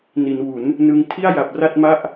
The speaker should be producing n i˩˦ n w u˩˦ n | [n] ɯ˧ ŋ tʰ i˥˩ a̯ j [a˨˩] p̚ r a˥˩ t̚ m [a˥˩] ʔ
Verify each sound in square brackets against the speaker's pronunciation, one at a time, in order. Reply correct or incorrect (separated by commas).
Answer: correct, correct, correct